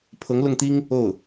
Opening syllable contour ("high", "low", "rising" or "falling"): rising